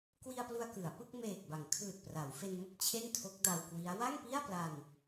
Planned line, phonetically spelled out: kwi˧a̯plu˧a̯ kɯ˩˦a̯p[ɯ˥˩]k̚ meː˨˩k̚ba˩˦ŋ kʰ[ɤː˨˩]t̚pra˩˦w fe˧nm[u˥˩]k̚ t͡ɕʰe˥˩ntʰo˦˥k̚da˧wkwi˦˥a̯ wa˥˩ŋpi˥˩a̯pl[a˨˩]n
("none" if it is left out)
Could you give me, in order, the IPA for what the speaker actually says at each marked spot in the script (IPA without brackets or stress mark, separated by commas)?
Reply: ɯ˥˩, ɯː˨˩, ɯ˥˩, a˧